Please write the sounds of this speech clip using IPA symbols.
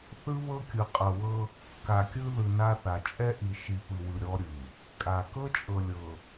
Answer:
θɯ˦βɤ˦kʲɯ˨ qʼɤ˨wɤ˦ | ka˨kʲɯ˦ðɯ˨ na˦θa˨ t͡ʃʼɛ˦ʔi˨ ʃi˨pɯ˨wɯ˨ ɾʲɔ˦ ɾʲɯ˨ | kʼa˨ kɤ˦t͡ʃʼɤ˨lʲɤ˨

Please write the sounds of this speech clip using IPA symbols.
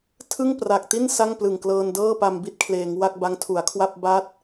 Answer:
tʰɯ˥˩ŋpra˨˩k̚ti˥˩n sa˥˩ŋplɯ˨˩ŋklɤː˧ndɤː˥˩ pa˧mbi˥˩t̚kʰleː˩˦ŋ wa˥˩k̚ba˦˥ŋtʰu˩˦a̯ kʰwa˥˩p̚ ba˦˥t̚

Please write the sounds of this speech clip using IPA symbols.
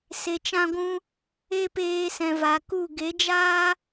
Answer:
se˧t͡ʃã˦ɡʷũ˦ | e˦peː˧ sɛ̃˨va˨ku˦˨ ɡe˨˦d͡ʒaː˦

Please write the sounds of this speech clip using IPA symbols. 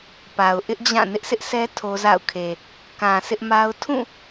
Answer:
pa˨ʊ̯ʔɪ˦ʔd͡ʑã˦˨ nɪ˦ʔsʰɪ˦ʔsʰɛ˦ tʰo˦za̰˦˨ʊ̯kʰe˨ | kã˨ sɪ˦ʔma˦ʊ̯ tʰũ˦˨

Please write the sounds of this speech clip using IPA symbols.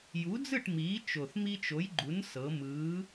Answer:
ju˨˥d͡zɯ˥˨ʈ miː˨˥t͡ʃo˨˩θ mi˦t͡ʃo˨˥jɡ͡ǃu˨˥nsɤ˩˧ mɯː˨˥

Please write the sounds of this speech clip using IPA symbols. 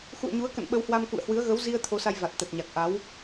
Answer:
xṵ˧˨ə̯ɲu˨˦ə̯kə̰˧˨n ɓə˨˦whwa˧mkṵ˧˨ə̯ hwɨ˨˦ə̯ɣə˨˦wzi˧ə̯ t̪ʰo˨˦sa˧jva˨˩t̚ t̪ə˨˩t̚ɲa˨˩k̚ ʔa˨˦w

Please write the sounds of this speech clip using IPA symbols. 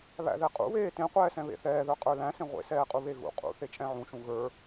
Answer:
βæ̰ðɛqʼṵβeː tẽqʷɛːsɛ̃ βḛθɛːðə˞ qʼə˞læ̃ sẽʁʷḛsɛːqʼu βeɣṵ qʼṵ θet͡ʃʼɛ̃ʕũʃũ ɣə˞

